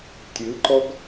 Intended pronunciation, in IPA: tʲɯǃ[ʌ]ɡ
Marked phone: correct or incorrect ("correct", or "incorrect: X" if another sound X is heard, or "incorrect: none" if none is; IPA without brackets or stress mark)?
incorrect: ɔ